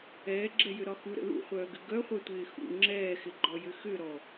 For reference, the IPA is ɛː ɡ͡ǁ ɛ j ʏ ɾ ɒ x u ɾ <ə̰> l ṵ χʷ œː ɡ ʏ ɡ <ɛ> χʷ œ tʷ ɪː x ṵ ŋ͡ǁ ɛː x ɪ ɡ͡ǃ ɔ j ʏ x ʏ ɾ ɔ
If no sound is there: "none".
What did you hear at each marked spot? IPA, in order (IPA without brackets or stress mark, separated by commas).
ə̰, œ